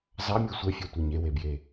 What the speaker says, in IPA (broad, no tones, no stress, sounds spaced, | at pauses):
z ɑ mʲ e sʷ ɛ fʲ ɑ tʷ e ɲ e w e b j e